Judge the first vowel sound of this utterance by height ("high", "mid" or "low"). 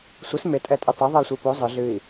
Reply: high